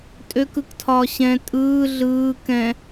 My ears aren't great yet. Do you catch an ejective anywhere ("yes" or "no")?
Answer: yes